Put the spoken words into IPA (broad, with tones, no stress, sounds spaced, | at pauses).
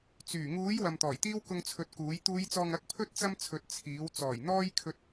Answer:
t͡s yː˨˩ ŋ uː˨˥ j w ɐ˨ m t̪ ɔː˨˩ j t̪ iː˥ w k ʊ˧ ŋ t͡sʰ ɵ˧ t̚ k uː˨˥ j t̪ uː˨˧ j t͡s ɔː˨ ŋ ɐ˨˥ k̚ pʰ ɵ˥ t̚ t͡s ɐ˥ m t͡sʰ ɵ˨˥ t̚ t͡sʰ iː˨˥ w t͡s ɔː˨˩ j n̪ ɔː˧ j kʰ ɵ˧ t̚